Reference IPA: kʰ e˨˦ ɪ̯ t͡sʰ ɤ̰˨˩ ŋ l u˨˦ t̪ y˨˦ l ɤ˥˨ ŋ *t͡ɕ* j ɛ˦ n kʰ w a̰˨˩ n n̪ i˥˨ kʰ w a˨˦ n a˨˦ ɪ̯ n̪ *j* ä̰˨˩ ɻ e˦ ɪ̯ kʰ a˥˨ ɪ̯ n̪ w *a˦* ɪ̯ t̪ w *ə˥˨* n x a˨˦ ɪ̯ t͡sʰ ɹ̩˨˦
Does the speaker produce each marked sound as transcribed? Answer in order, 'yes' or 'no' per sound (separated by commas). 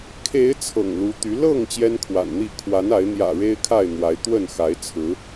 yes, yes, no, yes